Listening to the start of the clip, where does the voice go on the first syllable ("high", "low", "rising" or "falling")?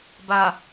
low